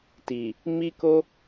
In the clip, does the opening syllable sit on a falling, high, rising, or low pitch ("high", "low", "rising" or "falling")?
low